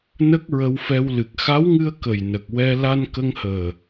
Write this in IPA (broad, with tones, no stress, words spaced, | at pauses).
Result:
nə˦˥k̚ɹə˧wfɛ˧w lɨ˨˩k̚xa˧˥wŋɨ˧ə̯ kə˨˩jnə˨˩k̚ wɛ˧ la˧nkə˧ŋhəː˨˩